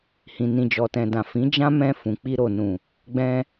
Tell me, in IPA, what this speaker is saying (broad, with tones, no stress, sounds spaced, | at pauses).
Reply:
h ĩ˨ n ĩ˨ d͡ʒ ɔ˨ t ɛ̃˨ d ã˨ f ĩ˨˦ d͡ʒ ã˦ m ɛ̃˧ f ũ˨ k͡p i˧ ɾ o˨ n ũ˨ | ɡ͡b ɛ̃˧